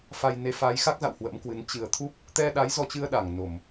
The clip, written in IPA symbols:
f a˧ j n e˨˦ f a˨˦ j x a˦˥ k̚ z a̰˧˨ w h w ə̰˧˥ m k w ɨ˨˦ n t͡ɕ ɨ˨˩ ə̯ t̪ʰ u˦˥ p̚ | t̪ ɛ˧ ɗ a˨˦ j z ɔ˧ t͡ɕ ɨ˧ ə̯ ɗ a˧˩ ŋ n o˧˩˨ m

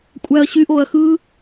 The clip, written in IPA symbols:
kʷʼ æ ɐ̯ ɕ y ʔ o ɐ̯ x ɯ

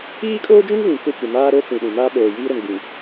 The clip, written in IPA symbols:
iː˦ kʼ oː˦ d͡ʒ ũ˦ ŋ v ĩ˨ k ʊ˦˨ kʷ ɪ˨ m aː˦ ɾ o˦ t͡s ĩ˨ ɗ ĩ˨ m aː˦ ɓ oː˨ j iː˦ ɾ ʊ˨ n ɡ͡b ĩ˨

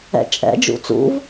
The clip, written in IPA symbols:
ɛ̰ t͡ʃʼ ɛ̰ d͡ʒ ṵ t͡s ṵ v

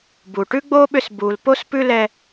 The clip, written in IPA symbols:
b u˨ ʈ ʉ˦ ɡ͡b o˦ ɓ ʏ˧ s b u˨ l p o˦ s p ʉ˦ l ɛ˧

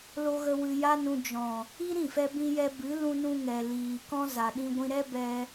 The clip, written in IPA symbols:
l o˧ ɣ ə˧ w ɨ˧ j a˦ n ũ˧ d͡ʒ ɔ̃˨ | i˦ ɾ ĩ˦˨ f ɛ˧ b ĩ˧ j ɛ˧ b ɨ˨˦ l ũ˧ n ũ˧ ŋ ɛ˨ l iː˨ k ɔ̃˦ z a˨ ɗ ĩ˧ ɡʷ ĩ˧ ɾ ɛ˦ b ɛ˧

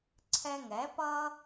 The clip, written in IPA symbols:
ǀʰ ɛ˧ ŋ ɛ˨˦ p ʌ˦

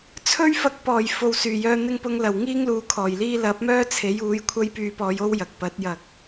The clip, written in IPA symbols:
t͡sʰ ɵ˥ ɥ f ɐ˧ k̚ p ɔː˨˩ j f o˨ w s yː˨˩ j œː˧ n̪ ɪ˧ ŋ p ʊ˨˧ ŋ l ɐ˨˩ w ŋ iː˥ ŋ l uː˨ kʰ ɔː˨˩ j l iː˥ l ɐ˨˥ p̚ m œː˥ t͡sʰ e˨˥ j uː˨˥ j kʷʰ ɐ˥ j p yː˧ p ɔː˨˧ j o˥ w j ɐ˨ k̚ p ɐ˨˥ t̚ j ɐ˨ k̚

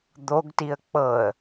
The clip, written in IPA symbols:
d̪ o ɡ t i ə̯ k͡p ɤ ə̯

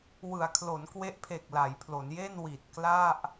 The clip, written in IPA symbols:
w ɯ˩˦ a̯ kʰ l o˩˦ n k w e˦˥ ʔ pʰ e˨˩ k̚ l a˩˦ j pʰ l o˩˦ n j e˥˩ n w i˨˩ t̚ k l a˥˩ ʔ

